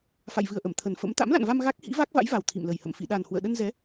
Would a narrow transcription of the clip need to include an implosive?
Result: yes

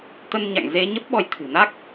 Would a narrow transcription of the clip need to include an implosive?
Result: yes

